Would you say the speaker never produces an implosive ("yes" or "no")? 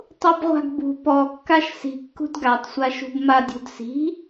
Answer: yes